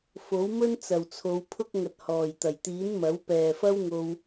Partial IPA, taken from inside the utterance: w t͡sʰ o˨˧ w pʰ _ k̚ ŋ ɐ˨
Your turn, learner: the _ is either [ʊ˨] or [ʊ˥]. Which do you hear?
ʊ˥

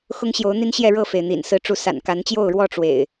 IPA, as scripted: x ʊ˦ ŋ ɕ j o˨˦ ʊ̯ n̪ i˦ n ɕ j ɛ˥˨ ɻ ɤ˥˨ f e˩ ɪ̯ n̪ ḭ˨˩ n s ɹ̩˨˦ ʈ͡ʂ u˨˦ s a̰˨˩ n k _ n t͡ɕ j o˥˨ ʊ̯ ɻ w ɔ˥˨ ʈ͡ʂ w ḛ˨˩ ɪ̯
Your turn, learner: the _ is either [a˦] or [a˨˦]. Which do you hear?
a˨˦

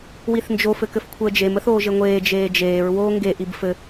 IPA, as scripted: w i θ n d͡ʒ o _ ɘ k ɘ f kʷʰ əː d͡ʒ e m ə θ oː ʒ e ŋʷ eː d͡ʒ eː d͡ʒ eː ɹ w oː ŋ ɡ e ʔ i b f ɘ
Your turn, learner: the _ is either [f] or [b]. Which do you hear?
f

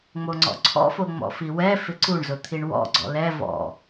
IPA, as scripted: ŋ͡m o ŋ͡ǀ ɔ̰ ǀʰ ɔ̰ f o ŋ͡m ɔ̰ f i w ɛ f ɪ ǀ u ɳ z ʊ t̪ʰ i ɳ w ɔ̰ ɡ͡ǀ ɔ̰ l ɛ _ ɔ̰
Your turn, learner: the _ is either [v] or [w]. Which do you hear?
v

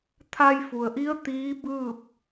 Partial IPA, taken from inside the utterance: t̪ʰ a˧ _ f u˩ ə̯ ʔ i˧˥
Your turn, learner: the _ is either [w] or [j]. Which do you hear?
j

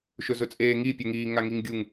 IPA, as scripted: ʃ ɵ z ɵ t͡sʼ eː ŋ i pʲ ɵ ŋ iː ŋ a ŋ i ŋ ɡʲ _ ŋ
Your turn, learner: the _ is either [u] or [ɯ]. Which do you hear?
u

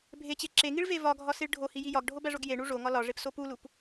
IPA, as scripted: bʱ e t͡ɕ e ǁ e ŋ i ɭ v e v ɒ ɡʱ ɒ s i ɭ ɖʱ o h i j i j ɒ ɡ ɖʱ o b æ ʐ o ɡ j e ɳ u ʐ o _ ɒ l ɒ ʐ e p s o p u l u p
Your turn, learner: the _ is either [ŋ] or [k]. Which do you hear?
ŋ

